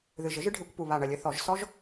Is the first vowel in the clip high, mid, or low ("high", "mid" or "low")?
high